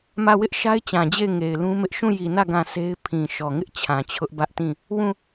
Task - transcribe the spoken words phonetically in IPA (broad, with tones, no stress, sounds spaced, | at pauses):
m ä˦˨ w ɪ˦ ʔ ʃ a˦ ɪ̯ t͡ɕ ã˨ d͡ʑ e˦˨ ɪ̯ ŋ e˨ ɪ̯ l ũ˦ m ɪ˦ ʔ ʃ ũ˦˨ j i˨ n ä˦˨ ɡ ã˦˨ s e˦ ɪ̯ pʰ ĩ˨ ʃ ɔ˨ ŋ ɪ˦ ʔ t͡ɕʰ ã˨ t͡ɕʰ ʊ˦ ʔ b ä˦ ʔ t ĩ˦˨ | w ũ˦˨